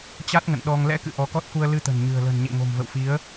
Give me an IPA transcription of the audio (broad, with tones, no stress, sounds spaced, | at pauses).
t͡ɕ a˦˥ t̚ ŋ ə̰˧˨ n ɗ ɔ˧ ŋ l ɛ̰˧˥ k ɨ̰˧˨ ʔ ɔ˨˦ k ɔ˦˥ t̚ k u˧ ə̯ l ɨ˧ t̪ ə̤˨˩ n ɲ ɨ̤˨˩ ə̯ l ə̤˨˩ n ɲ ḛ˧˨ ŋ o̤˨˩ m v ə̰˧˨ w f i˨˦ ə̯